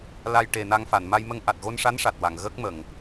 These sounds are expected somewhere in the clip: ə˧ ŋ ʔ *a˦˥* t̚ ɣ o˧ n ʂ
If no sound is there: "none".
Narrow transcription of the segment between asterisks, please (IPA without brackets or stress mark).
a˨˩